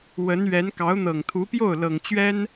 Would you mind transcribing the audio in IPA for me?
w ə˧˥ n ɥ ɛ˧˥ n k ɑ˧˥ ʊ̯ n̪ ɤ˨˩ ŋ t̪ʰ u˧˥ p j o˥˩ ʊ̯ l ɤ˨˩ ŋ t͡ɕ ɥ ɛ˥ n

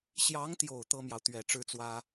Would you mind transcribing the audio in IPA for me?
ɕ j ɑ˧˥ ŋ t̪ j o˨˩ ʊ̯ t̪ ɤ˥ m j ɑ˨ ʊ̯ t̪ ɥ ɛ˨˩ ʈ͡ʂ ɻ̩˥ t͡s w ä˥

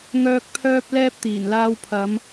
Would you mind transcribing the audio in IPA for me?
ŋ œː˥ k̚ pʰ œː˥ p̚ l ɛː˥ p̚ t̪ iː˨˩ n l aː˧ w pʰ ɐ˨˧ m

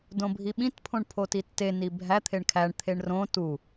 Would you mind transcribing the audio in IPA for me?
d õ bʱ i ɓ ĩ t pʰ õ ɳ pʰ o t i tː e n i bʱ æ t̪ʰ e ɳ kʰ æ ɳ t̪ʰ e ɳ r õ t u

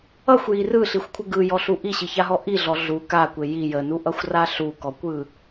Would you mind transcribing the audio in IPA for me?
ʌ xʷ j i r ɯ ɬ i xʷ kʷʰ ə ɡ ɯ j ɔ ɬ u ʔ i ɕ i ç a ɦ ɔ ʔ i ɮ ɔ ɮ u k a kʷ e j i j ə n u ʔ ʌ xʷ r a ɬ u k ɔ kʷ ɯ

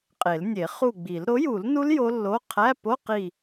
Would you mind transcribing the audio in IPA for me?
qʼ e˨˩˦ l nʲ e˨˩˦ χ u˦˨ ɡ͡b i˨˩˦ l ɾ o˩˥ j u˨˩˦ l n u˦˥ l j o˦˥ lː o˧˥˧ qʰ æ˧˥˧ p o˧˥˧ q i˦˨

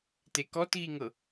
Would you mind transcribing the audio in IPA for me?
t e k ɔ t ɣ i ŋ ɤ

